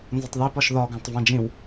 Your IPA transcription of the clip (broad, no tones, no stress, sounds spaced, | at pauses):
n z ʊ tˤ ð i p ɒ ʃ ð ɒ ɡ ɑ̃ tˤ v ɑ̃ d͡ʒ ĩ w